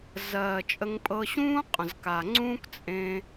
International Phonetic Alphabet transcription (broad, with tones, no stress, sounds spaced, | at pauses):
z ɜː˨ t͡ʃʼ ə˧ ŋ pʼ ɤ˧ ɕ ũː˦ qʼ ə̃˨ z k a˨ ŋ͡ǀ ũː˦ k t͡sʼ ẽ˧